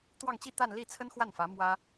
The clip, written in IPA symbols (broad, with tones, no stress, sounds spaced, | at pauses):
t̪ w ɑ˥˧ ŋ t͡ɕ i˥˧ t̪ a˥˧ n l i˥˩ t͡sʰ ə˥ n x w a˥˩ n f ä˧˥ m w ä˥